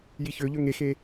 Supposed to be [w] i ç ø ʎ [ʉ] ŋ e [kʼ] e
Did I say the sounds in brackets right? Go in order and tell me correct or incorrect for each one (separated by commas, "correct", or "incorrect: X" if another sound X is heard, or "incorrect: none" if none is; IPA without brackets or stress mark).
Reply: incorrect: j, incorrect: ø, incorrect: x